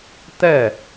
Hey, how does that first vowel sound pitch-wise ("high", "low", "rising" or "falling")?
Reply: falling